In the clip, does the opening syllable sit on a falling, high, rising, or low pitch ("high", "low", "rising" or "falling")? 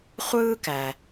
high